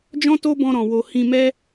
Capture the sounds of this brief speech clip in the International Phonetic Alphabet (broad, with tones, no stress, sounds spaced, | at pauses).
d͡ʒ ɔ̃˦ t o˦ b ɔ̃˧ ɾ ɔ̃˨ w o˨ h ĩ˧ m ɛ˦